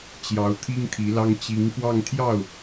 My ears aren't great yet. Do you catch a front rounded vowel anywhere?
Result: no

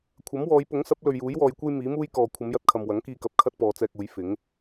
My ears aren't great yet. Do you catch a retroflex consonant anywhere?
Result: no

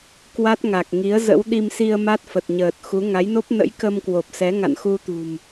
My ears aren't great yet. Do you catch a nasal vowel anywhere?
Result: no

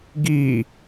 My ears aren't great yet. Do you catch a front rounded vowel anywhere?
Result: no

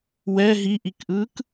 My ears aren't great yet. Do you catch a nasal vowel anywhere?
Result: no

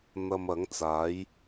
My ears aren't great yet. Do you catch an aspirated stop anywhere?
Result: no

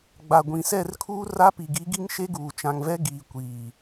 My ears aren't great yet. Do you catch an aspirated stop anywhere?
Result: yes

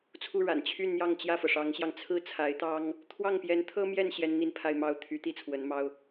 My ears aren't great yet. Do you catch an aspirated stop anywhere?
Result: yes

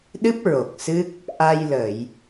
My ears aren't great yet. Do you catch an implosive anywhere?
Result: yes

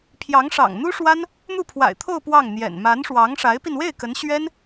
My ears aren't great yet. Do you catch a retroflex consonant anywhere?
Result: yes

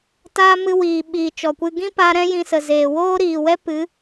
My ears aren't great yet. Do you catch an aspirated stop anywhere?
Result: no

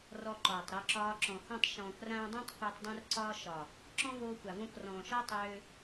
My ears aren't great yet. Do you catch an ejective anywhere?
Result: no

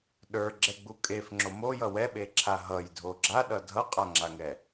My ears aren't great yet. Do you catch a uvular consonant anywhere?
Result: yes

